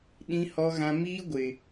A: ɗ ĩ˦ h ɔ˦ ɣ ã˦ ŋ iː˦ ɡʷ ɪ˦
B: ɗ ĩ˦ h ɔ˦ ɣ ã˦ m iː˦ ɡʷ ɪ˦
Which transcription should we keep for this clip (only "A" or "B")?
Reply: B